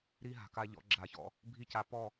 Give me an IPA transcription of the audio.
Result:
ɾ i˦ ɦ a̤˨ k a˧ ʎ ɔ̰˨˦ ɡ͡ǁ a˨ ç ɔ̰˧ | bʱ i˦ c a˧ p ɔ˦˨

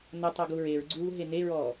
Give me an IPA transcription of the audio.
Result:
n ɐ tˤ ɔ ɡ u ɹ e ɹ ɡ͡ǀ uː ɦ e n e ɹ ɔː

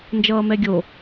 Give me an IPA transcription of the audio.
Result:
n d͡ʒ ʌː m ɛ ɡʲ o

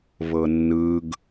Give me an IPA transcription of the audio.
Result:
β ɤ nː ɯ ɡ

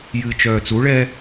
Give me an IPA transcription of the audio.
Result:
j ɨ t͡ʃ œː t͡s u ɭ ɛ

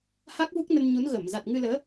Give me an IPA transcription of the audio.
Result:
h a˦˥ k̚ v u˦˥ k̚ n ə˧ n ɲ u˨˦ n ɣ ə˧˩ m z a˨˩ t̚ ŋ ɨ˧ l əː˨˦

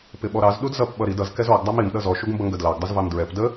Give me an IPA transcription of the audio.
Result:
p ɪ ɓ ɔ ɾ ɑ z ɗ u d z ʌ p ɓ ʌ ɾ i d ʌ z k ɛ z ɔ ɡ dˤ ɑ m i m ɗ ʌ z ɔ ʃ u ɡ m b ʌ ŋ ɡ ə d l ɑ ɡ dˤ ə z v ɑ m d ɹ ɛ p d ə

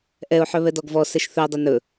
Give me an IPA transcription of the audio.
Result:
ʔ ɛ ʊ̯ ħ œ β ɛ d ɔ ɡ v ɔ s ɛ ʃ θ ɵ ʊ̯ dˤ e n ɵ

